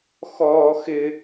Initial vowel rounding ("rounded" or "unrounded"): rounded